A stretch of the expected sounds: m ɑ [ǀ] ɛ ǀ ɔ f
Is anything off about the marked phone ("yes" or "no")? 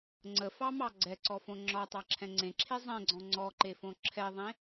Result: yes